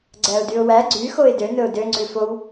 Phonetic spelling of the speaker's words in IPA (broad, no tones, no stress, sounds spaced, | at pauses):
ɡ͡ǀ æ ʊ̯ d y ʊ̯ w æ ɡ͡ǀ y x o ɪ̯ d ø n ɵ ʊ̯ d ø ŋ͡ǀ ʉ f o w